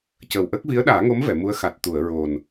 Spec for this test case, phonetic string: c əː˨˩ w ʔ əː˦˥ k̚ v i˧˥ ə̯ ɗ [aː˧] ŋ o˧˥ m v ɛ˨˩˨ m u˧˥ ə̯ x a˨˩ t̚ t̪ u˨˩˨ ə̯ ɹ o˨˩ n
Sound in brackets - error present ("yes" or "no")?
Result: yes